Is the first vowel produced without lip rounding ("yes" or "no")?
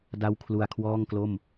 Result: yes